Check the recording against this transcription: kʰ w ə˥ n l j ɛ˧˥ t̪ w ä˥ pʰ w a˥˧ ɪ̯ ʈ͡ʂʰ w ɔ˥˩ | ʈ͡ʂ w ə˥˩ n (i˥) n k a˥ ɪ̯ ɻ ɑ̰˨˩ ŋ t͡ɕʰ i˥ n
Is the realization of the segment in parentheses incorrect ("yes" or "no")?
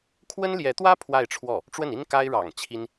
no